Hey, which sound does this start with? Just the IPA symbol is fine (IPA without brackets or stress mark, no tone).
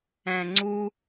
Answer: ɛ̃